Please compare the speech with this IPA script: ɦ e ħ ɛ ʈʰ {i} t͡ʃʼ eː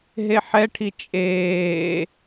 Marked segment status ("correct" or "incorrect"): correct